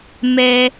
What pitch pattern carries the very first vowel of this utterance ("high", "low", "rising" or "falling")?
high